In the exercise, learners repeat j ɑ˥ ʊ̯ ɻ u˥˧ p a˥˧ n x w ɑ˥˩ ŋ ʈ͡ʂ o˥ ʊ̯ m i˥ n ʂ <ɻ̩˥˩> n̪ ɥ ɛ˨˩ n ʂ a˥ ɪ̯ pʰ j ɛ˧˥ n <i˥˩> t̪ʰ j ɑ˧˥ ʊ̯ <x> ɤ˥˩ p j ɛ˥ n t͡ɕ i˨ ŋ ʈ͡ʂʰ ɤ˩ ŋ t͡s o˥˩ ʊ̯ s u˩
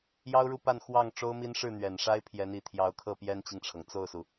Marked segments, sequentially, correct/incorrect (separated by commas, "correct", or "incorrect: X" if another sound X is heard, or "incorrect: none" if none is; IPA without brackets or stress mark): correct, incorrect: i˨˩, incorrect: kʰ